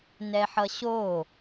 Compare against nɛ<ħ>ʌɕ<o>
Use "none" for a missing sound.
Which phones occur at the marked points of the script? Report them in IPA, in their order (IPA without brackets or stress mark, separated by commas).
ħ, o